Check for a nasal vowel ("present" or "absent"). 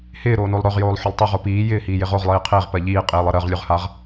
absent